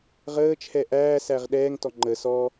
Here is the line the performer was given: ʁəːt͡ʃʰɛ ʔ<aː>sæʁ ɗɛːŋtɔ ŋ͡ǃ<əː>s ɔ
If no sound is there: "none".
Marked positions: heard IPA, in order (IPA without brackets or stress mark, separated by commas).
æː, əː